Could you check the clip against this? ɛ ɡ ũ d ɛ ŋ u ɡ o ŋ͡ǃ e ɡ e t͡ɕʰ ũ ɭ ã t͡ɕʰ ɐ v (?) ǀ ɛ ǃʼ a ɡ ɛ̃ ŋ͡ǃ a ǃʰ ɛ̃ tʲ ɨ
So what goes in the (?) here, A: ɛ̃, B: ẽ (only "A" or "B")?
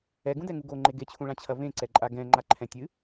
B